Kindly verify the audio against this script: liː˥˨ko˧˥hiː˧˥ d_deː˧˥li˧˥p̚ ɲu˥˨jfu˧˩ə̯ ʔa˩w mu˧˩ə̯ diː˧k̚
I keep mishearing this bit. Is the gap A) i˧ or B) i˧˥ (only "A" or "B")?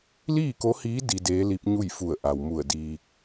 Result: A